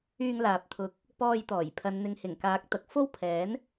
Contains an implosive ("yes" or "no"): no